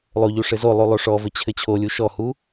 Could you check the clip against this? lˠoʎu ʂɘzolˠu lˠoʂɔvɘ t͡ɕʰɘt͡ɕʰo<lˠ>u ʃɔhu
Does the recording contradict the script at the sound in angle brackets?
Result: yes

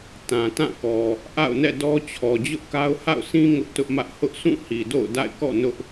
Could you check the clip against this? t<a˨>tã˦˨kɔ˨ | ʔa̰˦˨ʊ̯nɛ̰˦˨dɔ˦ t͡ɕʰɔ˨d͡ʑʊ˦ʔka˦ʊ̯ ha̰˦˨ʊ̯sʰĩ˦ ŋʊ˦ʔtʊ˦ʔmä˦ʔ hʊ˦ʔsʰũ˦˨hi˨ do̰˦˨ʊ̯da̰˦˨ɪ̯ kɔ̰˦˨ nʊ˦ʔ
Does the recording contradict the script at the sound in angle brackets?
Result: yes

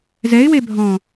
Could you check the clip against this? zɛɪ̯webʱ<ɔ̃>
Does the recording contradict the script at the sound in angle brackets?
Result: no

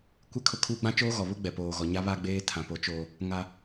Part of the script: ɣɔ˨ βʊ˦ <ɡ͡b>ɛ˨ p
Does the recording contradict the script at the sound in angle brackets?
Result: no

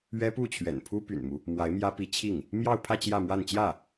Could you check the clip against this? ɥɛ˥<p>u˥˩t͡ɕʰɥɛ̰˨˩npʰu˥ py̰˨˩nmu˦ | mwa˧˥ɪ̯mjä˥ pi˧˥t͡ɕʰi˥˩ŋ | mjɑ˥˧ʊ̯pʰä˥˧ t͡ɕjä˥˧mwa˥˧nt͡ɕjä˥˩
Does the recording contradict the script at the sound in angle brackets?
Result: no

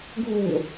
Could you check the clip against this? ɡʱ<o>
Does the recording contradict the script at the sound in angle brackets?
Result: yes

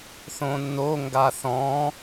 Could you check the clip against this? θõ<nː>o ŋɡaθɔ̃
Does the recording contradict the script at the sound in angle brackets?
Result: no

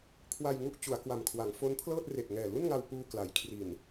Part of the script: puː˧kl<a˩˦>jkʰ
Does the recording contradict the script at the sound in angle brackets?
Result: no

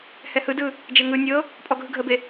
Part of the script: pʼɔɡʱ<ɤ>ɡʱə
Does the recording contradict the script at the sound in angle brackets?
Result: yes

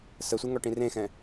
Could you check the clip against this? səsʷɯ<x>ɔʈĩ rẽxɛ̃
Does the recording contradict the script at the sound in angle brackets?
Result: yes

